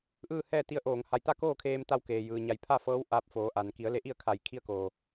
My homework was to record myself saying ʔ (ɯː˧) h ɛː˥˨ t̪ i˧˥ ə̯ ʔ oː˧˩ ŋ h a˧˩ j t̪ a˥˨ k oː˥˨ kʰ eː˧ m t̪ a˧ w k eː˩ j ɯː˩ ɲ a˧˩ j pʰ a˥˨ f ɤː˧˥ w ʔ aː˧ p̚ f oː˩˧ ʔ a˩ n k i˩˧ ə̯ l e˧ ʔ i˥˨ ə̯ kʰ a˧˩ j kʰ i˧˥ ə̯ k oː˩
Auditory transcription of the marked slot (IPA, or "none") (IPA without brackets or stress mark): ɯː˥˨